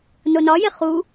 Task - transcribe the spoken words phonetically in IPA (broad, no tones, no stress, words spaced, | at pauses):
nonɒje χu